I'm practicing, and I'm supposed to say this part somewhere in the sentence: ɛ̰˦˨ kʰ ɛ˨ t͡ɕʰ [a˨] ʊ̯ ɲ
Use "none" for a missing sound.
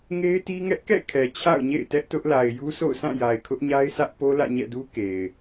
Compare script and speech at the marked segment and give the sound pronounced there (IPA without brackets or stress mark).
a̰˦˨